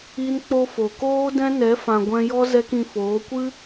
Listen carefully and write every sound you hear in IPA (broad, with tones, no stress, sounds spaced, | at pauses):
i˦ n k͡p o˦ f o˨ k oː˦ d ɛ̃˦ n ɛ˨˦ f ã˨ ɡʷ ɛ̃˧ j ɔ˦ z ɛ˦ k ĩ˧ f oː˨˦ kʷ ɨ˦